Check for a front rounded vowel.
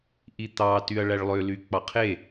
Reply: present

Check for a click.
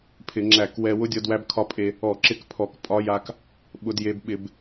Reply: present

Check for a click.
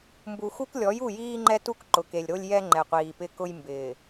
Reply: present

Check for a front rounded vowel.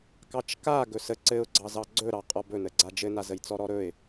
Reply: absent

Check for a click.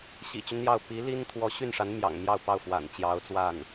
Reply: absent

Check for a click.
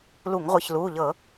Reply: absent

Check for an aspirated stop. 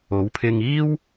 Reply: present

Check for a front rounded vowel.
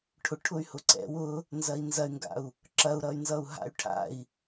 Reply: present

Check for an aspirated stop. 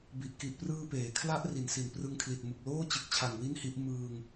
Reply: present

